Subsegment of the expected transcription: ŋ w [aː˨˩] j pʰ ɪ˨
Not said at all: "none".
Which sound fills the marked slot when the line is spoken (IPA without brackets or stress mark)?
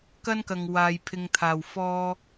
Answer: aː˨